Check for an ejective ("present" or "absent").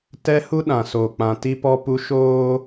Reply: absent